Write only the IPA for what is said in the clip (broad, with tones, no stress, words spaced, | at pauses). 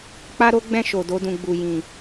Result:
k͡pa˦ɾo˦ɡ͡bɛ̃˦˨ ʃo˨do˧dũ˨ ɡ͡bu˨ jĩ˨